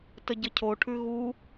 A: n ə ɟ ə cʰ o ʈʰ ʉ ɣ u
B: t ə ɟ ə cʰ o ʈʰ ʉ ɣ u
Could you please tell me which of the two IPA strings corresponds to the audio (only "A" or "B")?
B